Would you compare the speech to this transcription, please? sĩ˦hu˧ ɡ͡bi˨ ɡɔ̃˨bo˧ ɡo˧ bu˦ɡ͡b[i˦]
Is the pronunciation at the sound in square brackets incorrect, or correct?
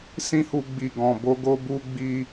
correct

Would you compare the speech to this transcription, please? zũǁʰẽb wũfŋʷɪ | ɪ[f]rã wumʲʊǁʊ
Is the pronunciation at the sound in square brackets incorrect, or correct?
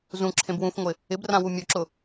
incorrect: b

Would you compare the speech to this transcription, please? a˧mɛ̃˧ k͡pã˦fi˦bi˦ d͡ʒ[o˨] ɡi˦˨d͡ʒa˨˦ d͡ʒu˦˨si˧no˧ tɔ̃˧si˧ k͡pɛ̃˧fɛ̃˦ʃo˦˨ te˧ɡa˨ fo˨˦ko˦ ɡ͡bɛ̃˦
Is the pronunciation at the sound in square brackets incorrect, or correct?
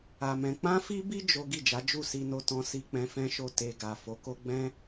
incorrect: o˦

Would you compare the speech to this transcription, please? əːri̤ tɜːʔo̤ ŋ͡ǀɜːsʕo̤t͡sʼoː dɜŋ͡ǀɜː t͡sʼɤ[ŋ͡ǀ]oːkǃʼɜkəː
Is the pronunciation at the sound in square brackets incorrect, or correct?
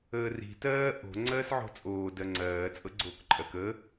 incorrect: ɡ͡ǀ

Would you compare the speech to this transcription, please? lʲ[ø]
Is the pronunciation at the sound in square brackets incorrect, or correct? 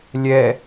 incorrect: ɛ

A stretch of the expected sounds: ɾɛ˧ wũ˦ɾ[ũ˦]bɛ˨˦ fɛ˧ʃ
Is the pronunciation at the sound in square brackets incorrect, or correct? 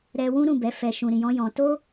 incorrect: ũ˦˨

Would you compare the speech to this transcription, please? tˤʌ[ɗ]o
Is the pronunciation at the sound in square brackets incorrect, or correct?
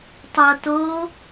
incorrect: t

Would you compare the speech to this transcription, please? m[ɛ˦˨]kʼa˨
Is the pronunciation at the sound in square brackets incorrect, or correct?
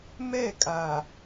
correct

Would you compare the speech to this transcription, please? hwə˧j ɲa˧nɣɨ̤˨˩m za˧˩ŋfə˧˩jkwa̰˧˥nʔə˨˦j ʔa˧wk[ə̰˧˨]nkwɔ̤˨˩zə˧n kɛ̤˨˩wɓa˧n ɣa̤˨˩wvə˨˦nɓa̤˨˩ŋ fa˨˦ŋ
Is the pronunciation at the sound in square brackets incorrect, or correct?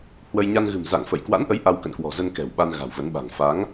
correct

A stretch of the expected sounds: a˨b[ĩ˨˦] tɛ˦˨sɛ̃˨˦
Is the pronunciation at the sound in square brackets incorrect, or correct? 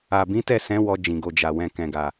correct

